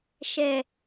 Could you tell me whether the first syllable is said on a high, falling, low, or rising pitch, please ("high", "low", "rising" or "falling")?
low